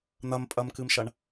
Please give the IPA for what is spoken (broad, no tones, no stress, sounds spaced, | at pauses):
n̪ ɐ m pʼ ɐ m k ɨ m ʃ ɐ ɳ